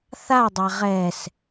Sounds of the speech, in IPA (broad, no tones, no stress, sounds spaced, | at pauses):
θ a dˤ a ʁ ɛ s